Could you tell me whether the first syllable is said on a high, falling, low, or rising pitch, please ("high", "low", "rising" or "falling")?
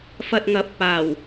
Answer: low